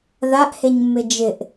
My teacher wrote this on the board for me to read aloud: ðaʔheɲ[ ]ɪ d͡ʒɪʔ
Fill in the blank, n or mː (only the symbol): mː